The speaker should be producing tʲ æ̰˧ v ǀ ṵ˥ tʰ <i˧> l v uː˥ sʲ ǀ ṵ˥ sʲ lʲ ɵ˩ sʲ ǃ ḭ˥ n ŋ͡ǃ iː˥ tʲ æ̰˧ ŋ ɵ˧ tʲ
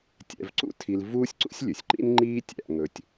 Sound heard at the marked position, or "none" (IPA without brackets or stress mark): i˧